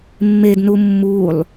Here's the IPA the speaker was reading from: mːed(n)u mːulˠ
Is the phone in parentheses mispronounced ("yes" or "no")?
no